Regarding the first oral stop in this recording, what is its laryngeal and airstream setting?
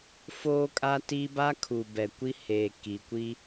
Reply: ejective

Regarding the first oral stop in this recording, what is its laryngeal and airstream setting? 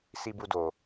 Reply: plain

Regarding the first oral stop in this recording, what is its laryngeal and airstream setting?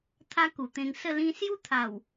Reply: aspirated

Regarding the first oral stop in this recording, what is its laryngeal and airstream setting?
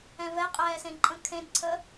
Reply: ejective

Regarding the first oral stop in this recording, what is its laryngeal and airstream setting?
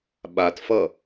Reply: implosive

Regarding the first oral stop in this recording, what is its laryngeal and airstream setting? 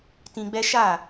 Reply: plain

